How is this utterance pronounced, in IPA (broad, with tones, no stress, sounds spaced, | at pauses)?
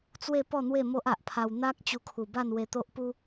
t͡s w e˥˧ p ɔ˥˧ n̪ w e˥˧ m o˦ ʔ a˨ ʔ pʰ a˧ w n̪ a˦ k̚ t͡ɕ u˧ kʰ u˨˩ b a˥˧ n w e˧ t̪ o˦ ʔ p u˦